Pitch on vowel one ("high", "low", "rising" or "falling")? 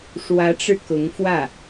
rising